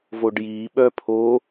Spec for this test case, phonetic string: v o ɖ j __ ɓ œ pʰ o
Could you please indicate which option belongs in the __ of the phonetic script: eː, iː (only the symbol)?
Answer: iː